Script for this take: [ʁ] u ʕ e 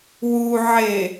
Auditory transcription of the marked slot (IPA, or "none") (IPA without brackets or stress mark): w